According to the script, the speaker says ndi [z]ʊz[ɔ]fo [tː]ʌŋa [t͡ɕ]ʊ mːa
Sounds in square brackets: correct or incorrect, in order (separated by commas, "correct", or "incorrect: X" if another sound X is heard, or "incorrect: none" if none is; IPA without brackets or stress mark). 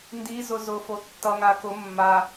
correct, incorrect: ʊ, correct, incorrect: k